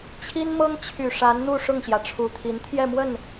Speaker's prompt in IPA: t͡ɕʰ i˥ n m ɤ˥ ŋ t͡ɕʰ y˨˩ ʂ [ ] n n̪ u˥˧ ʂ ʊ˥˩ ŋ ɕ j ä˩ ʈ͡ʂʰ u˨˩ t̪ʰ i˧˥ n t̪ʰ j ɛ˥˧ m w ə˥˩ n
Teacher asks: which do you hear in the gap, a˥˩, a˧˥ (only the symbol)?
a˧˥